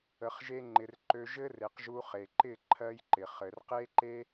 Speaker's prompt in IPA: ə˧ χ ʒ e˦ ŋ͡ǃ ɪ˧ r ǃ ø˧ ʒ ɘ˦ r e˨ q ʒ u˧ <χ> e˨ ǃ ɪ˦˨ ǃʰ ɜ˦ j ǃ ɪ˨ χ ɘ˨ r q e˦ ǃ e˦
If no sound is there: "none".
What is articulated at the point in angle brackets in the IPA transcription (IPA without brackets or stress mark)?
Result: χ